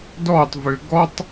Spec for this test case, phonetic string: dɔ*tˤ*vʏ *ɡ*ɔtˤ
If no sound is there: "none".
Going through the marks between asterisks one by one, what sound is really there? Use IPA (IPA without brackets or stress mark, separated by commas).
tˤ, ɡ